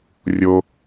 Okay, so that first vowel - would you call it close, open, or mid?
mid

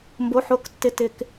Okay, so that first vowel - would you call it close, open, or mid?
mid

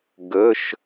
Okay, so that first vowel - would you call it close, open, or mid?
mid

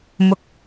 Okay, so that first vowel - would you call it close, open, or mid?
close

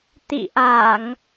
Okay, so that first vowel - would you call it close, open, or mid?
close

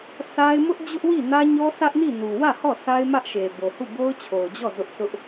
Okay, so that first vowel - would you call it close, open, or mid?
open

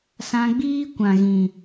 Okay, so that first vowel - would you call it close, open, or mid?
open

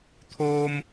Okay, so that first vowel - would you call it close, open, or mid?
mid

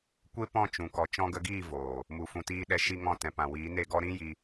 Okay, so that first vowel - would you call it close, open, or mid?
mid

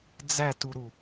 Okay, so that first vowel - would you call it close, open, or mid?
open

